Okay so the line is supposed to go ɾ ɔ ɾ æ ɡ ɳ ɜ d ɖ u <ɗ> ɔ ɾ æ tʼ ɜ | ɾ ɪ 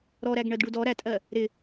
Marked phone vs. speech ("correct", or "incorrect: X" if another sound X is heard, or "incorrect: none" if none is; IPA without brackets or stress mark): incorrect: d